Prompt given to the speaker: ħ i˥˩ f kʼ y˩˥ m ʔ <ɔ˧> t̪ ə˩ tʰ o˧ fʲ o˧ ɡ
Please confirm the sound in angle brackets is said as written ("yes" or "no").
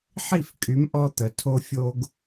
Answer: yes